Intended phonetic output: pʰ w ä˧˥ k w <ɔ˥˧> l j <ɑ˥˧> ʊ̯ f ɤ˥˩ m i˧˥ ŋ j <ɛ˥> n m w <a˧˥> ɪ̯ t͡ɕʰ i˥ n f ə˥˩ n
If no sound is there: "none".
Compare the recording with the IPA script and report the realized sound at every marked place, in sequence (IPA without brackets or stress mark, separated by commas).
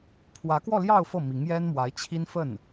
ɔ˥˧, ɑ˥˧, ɛ˥, a˧˥